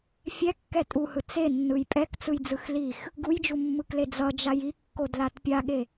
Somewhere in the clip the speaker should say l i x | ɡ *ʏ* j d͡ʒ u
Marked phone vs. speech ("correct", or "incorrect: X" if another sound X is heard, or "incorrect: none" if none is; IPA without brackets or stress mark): incorrect: u